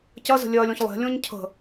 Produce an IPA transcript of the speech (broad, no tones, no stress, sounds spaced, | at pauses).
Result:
c ɐ z ə̤ lʲ ɜ lʲ ɔ̃ ç lˠ e̤ lʲ ɔ̃ ɲ cʰ ə̤